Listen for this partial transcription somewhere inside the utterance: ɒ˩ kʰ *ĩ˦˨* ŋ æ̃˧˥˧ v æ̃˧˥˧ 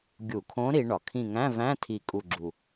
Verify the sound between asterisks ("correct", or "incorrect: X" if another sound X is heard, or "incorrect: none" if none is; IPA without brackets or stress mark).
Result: correct